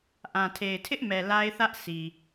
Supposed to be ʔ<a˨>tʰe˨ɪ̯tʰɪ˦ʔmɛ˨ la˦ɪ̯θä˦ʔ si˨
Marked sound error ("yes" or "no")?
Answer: yes